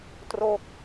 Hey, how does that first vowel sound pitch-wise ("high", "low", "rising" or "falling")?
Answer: falling